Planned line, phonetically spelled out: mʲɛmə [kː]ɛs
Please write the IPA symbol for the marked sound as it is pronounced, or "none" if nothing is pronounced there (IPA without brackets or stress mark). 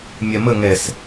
ŋ